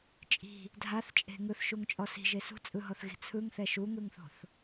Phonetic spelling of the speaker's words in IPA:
t͡ʃʼ i̤ | dʱ a θ t͡ʃʼ e̤ ŋ ɯ θ ʃ u ŋ t͡ʃʼ ɔ s i̤ ʒ e s ṳ t͡sʼ ɯ ɦ ɔ θ ɣ i̤ t͡sʰ ɯ ŋ θ ɛ ʃ u ŋ ɯ ŋ θ o̤ θ

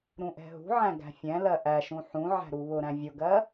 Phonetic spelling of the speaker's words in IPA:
ɾ ũ ʔ ɛ̤ ɦ ṳ ʕ æ̃ ɡ æ̤ fʲ ɛ̃ l ɜ ʔ æ ʃ ũ ħ ũ ʕ æ̤ ɾ u β ʊ ɾ æ̃ vʲ ʊ ɡ ɜ

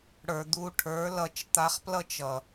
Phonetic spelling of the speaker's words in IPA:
ɽ ə˞˨ d̪ u˧ ʈʰ ə˞˨˦ l ʌ˨˦ t͡ʃ t̪ a˧ χ p l ʌ˦ t͡ʃ ʌ˨

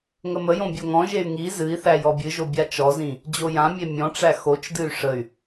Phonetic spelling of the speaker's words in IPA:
ŋ ə m ə j õ bʲ o ŋ ɔ̃ ʒ e y̯ ŋ i z ɨ i̯ θ æ j ɔ bʲ ɨ ʒ o bʲ a t͡ʃ ɔ z ĩ | d͡ʑ o j ã mʲ e mʲ ɔ̃ ʈ͡ʂ æ x o t͡ʃ d ɨ y̯ ʂ ə y̯

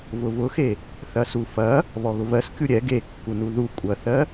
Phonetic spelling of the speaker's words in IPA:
v ʊ v ʊ x e | θ ɐ s u f ɐ | β ɔ ɣ ʊ v ɜ s kʲ u ɾʲ ɛ ɡ e kː u n u ð u kʷʼ ɐ θ ɜ

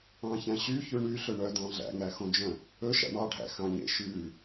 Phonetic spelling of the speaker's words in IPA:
ɑ̃ ç æ̃ ɕ y ç ʉ ɳ y ɬ ɵ ɳ œ d ɑ̃ ɮ æ̰ ŋ æ x õ d͡ʒ œ̃ | ɵ ʃ æ̰ ɳ ɑ ɖʱ æ̰ x ɑ̃ ɲ ḛ ʃ ʉ

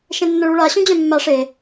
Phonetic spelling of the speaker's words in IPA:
ʃ ẽ nː ə̃ ɭ u ɭ a ɕ ũ d͡ʑ œ̃ mː a ʂ e

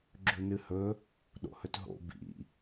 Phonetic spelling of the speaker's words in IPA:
ɡ͡ǁ ʉ n ɨ h ɵ | ɗ o̰ h ɵ t ɦ o̰ b ḭ

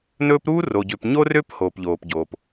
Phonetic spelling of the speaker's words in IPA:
n ɵː˦ p ɾ uː˥ r o˩ ɟ ø˨ p ɲ o˦ r ø˦ p h oː˩ p ʎ oː˩ p ɟ oː˩ p

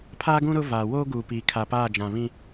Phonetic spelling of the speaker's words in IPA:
pʰ aː˦ ɡ ũ˦ ɾ ʊ˦ v aː˨ w oː˦ ɡ uː˨ p iː˨ kʰ a˨ p aː˦˨ d͡ʒ ã˨ β ĩ˦

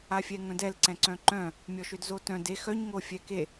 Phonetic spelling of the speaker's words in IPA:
a fʲ ɛ ŋ œ̃ d ɛ l ǀ ɛ̃ ǀ œ̃ ǃ œ̃ | mʲ ɔ ʃ ø d z o t œ̃ d e x œ ɲ ŋ o fʲ ɛ k e

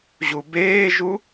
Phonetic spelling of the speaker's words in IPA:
ʑ u b eː ʒ u

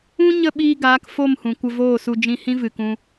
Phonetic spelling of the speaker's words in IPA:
ũ˦ ɲ ə˦˨ ɓ iː˧ ɡ aː˨˦ k f o˦˨ m h ũ˨ kʷ ə˧ v oː˦˨ s u˧ d͡ʒ ĩ˧ h ĩ˦ v ɨ˨ k ũ˧

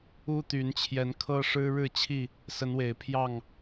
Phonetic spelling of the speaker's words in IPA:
u˦ t̪ y˨˦ n t͡ɕʰ j ɛ˨˦ n kʰ ɤ˦ ʂ ɻ̩˦ ɻ ɻ̩˥˨ t͡ɕʰ i˥˨ | s ə˨˦ n w e˨˩ ɪ̯ pʰ j ɑ˥˨ ŋ

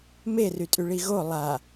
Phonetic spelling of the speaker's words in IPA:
m e r y tʼ y ɭ i ɣ o lˠ a

